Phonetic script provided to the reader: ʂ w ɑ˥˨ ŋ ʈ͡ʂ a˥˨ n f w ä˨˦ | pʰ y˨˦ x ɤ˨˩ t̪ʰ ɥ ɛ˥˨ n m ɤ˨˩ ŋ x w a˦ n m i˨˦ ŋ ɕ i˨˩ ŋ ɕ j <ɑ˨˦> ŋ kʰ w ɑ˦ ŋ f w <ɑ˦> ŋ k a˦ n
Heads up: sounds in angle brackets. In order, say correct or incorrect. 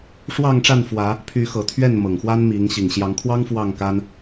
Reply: correct, incorrect: ɑ˥˨

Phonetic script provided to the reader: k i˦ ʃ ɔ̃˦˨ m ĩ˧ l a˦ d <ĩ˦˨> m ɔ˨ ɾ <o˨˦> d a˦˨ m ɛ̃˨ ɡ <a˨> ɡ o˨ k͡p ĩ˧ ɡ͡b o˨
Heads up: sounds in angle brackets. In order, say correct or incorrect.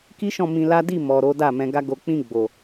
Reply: incorrect: i˦˨, correct, incorrect: a˧

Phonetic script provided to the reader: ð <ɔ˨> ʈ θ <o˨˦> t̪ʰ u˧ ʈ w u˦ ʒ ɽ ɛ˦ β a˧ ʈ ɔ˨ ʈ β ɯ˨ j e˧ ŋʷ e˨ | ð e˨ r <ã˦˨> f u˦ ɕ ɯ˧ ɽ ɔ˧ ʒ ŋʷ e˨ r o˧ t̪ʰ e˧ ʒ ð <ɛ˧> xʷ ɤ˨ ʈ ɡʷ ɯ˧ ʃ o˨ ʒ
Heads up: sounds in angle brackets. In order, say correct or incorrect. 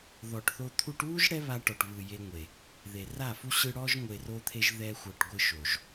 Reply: correct, incorrect: o˧, incorrect: a˦˨, correct

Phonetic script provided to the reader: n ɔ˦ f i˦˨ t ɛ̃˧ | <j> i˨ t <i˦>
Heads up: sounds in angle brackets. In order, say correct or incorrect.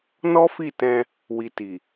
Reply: incorrect: w, incorrect: i˨

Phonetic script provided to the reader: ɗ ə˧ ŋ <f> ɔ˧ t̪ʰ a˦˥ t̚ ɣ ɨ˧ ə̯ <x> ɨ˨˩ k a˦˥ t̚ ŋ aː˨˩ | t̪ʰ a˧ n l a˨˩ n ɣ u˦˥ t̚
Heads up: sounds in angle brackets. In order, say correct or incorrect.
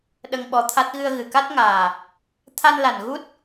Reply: incorrect: ɓ, incorrect: ɣ

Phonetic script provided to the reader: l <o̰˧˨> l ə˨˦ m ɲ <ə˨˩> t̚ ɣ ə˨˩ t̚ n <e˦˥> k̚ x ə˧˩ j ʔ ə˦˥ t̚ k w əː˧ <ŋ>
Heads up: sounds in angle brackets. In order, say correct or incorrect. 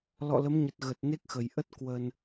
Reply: incorrect: ɔ̰˧˨, correct, correct, incorrect: n

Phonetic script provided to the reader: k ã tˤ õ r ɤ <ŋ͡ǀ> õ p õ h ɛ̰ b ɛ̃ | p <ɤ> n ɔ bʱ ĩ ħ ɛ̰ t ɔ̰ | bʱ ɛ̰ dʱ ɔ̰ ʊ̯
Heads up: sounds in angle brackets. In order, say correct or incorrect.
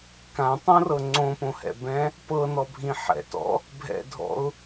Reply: correct, correct

